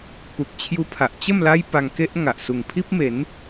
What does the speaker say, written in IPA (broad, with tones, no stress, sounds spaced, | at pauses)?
k u˨ k̚ t͡ɕʰ j u˧ pʰ a˨ ʔ t͡ɕ ə˥˧ m l a˦ j p a˧ ŋ k e˦ ʔ ŋ a˨ ʔ s u˨˩ ŋ pʰ i˦ p̚ m e˨˦ n